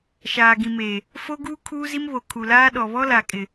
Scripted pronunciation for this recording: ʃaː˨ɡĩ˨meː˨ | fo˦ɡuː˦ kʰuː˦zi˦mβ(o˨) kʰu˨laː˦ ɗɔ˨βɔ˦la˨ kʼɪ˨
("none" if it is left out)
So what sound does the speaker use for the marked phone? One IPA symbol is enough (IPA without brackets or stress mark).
o˨